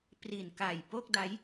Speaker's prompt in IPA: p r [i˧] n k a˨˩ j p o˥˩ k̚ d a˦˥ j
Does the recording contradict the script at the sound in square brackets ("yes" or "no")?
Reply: yes